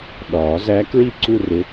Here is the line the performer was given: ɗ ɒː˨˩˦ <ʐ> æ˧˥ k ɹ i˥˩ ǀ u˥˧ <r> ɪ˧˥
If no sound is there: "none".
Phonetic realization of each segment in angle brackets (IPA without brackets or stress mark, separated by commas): z, r